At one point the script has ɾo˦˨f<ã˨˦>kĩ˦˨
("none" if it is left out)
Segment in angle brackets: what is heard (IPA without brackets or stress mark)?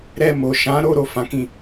ã˨˦